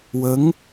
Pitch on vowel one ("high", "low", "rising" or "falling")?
rising